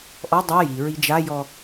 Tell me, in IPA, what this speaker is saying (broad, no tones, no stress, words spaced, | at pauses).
ʔɔ dˤɛ jiɹi d͡ʒajɔ